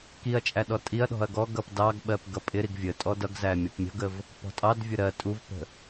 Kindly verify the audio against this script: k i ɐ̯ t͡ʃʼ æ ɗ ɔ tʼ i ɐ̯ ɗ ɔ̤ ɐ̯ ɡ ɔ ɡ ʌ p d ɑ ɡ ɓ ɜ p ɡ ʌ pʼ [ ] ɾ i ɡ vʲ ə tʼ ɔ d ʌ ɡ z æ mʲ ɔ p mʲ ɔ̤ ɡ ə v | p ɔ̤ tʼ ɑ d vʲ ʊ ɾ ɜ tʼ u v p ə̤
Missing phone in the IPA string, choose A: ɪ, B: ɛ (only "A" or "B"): A